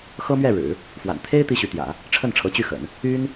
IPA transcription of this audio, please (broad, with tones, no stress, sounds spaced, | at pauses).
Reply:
x ɤ˥ m ɥ ɛ˥˩ ɻ ɻ̩˨˩˦ | f w a̰˨˩ n t̪ʰ e˥ ɪ̯ t̪ i˥ ɕ y˧˥ t̪ j ä̰˨˩˦ | ʈ͡ʂʰ ə˥˩ n ʈ͡ʂʰ ɤ˧˥ t͡ɕ y˥˩ x ə̰˨˩˦ n | y˥ n